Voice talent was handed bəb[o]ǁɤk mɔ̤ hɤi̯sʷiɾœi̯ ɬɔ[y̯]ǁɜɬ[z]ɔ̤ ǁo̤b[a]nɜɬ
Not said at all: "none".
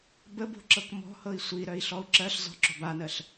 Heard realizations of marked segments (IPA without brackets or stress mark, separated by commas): o̤, u̯, z, a